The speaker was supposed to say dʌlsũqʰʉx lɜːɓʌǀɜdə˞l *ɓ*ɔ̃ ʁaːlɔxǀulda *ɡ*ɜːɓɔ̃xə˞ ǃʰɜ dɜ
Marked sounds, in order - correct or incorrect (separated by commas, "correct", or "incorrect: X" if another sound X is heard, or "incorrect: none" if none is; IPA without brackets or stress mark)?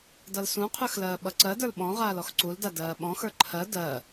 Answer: correct, incorrect: d